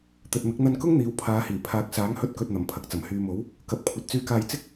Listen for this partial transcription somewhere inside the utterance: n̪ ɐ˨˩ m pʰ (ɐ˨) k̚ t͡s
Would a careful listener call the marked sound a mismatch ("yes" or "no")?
no